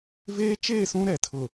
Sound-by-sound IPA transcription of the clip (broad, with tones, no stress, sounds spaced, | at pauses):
v eː˦ t͡ʃ eː˦˨ s ũ˦ ɾ ɛ˨ tʰ ʊ˨